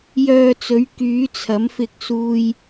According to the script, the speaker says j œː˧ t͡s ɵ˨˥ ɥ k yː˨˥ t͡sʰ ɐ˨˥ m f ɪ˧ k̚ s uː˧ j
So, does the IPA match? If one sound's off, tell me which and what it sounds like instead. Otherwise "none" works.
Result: none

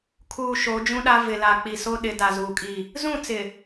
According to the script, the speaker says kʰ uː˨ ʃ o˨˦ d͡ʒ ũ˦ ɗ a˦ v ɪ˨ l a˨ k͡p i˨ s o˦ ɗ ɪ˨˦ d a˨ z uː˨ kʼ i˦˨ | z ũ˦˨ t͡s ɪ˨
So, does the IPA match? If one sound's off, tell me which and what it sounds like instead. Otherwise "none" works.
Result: none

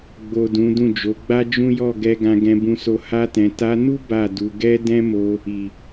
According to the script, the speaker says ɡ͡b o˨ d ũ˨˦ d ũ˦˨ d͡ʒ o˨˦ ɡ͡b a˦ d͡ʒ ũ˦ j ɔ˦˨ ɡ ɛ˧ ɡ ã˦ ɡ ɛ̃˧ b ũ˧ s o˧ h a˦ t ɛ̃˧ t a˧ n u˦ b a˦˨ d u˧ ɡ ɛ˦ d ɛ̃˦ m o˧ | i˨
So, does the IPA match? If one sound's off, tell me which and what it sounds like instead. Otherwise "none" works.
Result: ã˦ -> ã˧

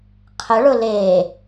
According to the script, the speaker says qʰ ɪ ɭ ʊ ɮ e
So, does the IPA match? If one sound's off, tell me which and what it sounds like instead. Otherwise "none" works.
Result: ɮ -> l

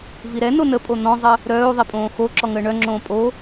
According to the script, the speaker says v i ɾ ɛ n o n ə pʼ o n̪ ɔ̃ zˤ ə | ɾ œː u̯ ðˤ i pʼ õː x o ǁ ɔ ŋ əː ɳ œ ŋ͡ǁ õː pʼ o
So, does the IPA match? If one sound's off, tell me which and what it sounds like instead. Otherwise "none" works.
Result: none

